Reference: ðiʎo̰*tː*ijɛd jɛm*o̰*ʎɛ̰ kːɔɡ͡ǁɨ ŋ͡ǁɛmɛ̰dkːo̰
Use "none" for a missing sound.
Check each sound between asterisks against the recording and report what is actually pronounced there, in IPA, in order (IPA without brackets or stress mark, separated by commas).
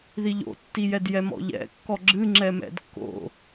tː, ɔ̰